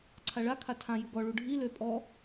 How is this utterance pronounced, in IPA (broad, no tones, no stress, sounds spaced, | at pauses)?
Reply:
ǀʰ a ɭ a kʰ a tʰ ã j u ɡ ɔ ɭ u ɖʱ i l ø pʼ ɔ